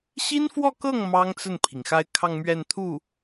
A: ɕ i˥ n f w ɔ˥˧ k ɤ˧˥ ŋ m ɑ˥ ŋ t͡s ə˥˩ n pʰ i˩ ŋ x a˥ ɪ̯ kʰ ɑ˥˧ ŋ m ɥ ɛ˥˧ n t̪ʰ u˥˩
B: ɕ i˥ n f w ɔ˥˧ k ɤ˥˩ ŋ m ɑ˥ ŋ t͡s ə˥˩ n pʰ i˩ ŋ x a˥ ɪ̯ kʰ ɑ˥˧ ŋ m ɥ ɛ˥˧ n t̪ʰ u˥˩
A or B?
B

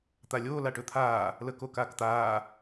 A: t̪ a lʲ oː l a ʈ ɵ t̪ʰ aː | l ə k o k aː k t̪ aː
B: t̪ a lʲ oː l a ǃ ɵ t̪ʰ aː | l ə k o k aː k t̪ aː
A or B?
A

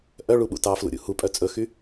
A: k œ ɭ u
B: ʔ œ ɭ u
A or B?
B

